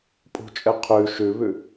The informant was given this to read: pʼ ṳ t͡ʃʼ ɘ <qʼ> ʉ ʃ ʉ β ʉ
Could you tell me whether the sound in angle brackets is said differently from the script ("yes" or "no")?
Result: yes